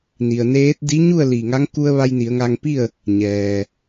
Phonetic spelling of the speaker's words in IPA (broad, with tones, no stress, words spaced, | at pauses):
ni˩ə̯neː˧˥t̚ di˧˥ɲu˥˨ə̯ li˧˩ŋa˧˥ŋ ku˧ə̯ ʋa˧jni˩˧ə̯ŋa˧ŋpi˥˨ə̯ | ɲɛː˩